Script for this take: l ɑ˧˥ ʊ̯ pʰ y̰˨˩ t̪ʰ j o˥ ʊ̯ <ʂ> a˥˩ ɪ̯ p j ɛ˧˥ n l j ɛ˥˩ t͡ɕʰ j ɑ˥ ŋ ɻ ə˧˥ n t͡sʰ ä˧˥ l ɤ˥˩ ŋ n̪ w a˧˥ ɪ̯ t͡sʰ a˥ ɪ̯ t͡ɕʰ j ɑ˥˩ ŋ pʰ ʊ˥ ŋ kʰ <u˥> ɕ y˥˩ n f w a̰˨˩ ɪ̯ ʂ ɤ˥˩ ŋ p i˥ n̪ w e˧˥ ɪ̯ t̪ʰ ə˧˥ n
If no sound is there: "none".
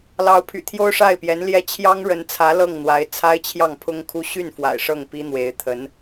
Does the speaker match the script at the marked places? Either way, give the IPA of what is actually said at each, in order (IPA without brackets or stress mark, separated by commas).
ʂ, u˥